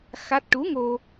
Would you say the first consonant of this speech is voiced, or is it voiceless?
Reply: voiceless